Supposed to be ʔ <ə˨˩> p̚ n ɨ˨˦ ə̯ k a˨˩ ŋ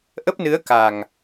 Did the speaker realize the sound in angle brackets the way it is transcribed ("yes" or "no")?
no